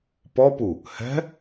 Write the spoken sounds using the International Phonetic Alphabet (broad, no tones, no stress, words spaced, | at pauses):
pɔpu | hɛ̤